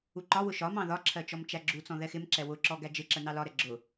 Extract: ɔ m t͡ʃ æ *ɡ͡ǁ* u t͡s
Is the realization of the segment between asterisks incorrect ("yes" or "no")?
no